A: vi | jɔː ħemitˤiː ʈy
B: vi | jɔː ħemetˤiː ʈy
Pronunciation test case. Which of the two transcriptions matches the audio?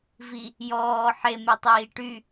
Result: B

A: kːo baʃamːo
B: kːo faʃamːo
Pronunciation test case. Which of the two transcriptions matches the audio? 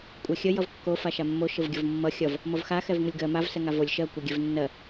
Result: B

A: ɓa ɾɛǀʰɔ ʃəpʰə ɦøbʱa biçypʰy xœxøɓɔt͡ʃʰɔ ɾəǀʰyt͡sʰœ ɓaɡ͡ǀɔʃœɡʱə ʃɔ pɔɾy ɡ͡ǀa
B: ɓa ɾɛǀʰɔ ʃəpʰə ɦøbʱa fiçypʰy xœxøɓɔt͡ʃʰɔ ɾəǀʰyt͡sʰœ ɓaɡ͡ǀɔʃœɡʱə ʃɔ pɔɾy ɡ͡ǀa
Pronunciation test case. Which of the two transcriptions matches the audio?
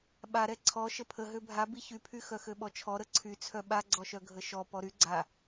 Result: A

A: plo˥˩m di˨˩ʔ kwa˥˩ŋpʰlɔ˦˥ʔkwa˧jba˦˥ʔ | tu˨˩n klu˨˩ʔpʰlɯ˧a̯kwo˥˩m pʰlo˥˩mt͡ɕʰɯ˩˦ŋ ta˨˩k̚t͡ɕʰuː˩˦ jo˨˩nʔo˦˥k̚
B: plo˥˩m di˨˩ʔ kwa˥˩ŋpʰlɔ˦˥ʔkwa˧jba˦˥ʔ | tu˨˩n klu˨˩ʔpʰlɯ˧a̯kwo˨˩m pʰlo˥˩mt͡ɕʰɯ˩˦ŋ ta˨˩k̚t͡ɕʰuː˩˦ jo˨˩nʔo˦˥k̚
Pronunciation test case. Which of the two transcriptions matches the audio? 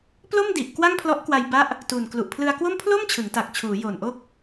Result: A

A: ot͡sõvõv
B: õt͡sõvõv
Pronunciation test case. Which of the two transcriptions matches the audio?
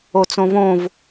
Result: A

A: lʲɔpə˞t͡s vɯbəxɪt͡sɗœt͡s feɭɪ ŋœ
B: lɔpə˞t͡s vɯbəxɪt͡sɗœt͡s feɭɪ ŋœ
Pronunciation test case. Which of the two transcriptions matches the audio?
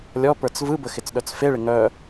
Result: A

